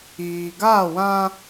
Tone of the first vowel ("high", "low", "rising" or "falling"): low